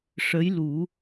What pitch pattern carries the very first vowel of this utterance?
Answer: rising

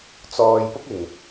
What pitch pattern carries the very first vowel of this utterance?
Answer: low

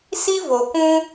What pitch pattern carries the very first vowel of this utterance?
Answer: high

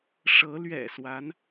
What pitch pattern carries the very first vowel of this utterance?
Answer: rising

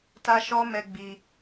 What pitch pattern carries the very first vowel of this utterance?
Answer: high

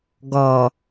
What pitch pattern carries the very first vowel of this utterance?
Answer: low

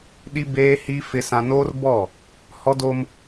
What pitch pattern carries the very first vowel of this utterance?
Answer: high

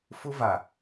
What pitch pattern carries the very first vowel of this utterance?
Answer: high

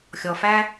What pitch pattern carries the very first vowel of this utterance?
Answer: low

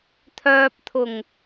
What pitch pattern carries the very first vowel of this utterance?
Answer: low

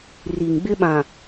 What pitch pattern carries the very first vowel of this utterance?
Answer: low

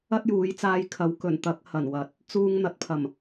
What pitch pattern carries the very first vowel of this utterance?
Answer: high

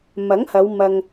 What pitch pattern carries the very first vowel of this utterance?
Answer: rising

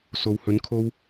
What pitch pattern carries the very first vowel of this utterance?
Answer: low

